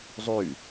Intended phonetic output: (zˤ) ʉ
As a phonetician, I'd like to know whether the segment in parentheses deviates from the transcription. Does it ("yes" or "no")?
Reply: no